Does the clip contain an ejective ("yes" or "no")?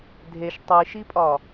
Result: yes